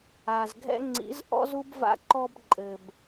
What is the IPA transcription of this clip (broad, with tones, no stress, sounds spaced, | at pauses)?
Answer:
a˧ z ɡʱ ɛ̰˦ ŋ͡ǀ ḭ˨˦ z ʔ ɔ̰˦ z u˦ b v a̰˧ ǃ ɔ˧ b ǃʼ ɘ˨ b